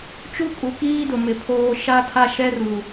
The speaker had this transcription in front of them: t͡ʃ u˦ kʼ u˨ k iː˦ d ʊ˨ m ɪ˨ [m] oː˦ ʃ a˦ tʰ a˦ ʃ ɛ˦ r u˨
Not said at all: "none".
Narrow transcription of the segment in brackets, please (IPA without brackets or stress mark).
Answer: pʰ